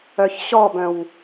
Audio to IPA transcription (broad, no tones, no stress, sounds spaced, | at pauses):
œ ç ɕ ɔ b œ̃ w